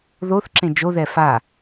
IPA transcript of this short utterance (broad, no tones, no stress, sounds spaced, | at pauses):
ð o θ ǁ ẽ d͡ʒ o ð ɛ f a